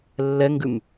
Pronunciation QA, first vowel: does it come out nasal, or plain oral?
oral